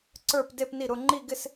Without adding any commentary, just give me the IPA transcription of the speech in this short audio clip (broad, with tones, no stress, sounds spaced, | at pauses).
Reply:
ǀ ə˞˥˧ p d e˥˧ p n i˥˩ ɾ ʊ˥˧ ŋ͡ǃ i˥˧ ɡ ɪ˥˧ s